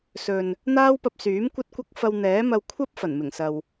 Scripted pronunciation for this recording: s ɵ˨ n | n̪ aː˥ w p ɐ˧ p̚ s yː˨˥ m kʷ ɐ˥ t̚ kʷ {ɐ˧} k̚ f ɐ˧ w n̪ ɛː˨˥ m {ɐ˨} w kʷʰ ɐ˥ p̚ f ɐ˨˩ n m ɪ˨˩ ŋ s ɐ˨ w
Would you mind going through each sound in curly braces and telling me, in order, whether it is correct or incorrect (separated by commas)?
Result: incorrect, incorrect